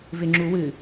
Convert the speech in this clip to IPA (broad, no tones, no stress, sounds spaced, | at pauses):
v ɪ ŋ͡ǁ u w ɨ